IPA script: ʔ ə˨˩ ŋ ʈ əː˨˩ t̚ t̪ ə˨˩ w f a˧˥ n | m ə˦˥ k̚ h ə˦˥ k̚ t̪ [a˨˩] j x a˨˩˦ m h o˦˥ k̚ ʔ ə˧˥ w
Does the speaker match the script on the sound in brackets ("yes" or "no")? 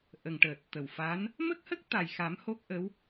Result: yes